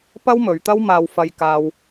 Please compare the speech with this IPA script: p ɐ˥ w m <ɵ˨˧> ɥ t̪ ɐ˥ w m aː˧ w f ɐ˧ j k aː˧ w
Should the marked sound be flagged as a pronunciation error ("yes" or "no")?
no